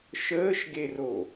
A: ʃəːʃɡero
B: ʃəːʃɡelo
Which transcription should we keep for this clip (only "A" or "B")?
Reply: A